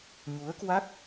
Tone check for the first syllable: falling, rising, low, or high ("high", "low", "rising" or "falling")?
rising